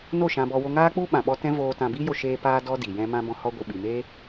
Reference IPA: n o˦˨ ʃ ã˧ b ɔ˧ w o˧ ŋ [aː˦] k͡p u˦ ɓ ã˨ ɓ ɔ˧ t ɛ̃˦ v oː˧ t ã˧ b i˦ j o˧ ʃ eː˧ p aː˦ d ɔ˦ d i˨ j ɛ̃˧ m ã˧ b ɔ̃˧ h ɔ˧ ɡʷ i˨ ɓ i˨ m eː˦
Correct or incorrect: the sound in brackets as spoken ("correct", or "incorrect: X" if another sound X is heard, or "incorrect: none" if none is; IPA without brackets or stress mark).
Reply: correct